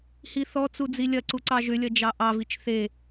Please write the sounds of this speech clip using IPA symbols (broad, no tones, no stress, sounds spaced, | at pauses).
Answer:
h i θ ɔ t͡s u d͡z i lʲ ɐ ǀ u ǀ ɑ ʒ ʏ lʲ ɐ d͡ʒ ɑ ʔ ɑ v i t͡ʃ θ e